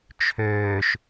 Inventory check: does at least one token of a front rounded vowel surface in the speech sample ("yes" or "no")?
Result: yes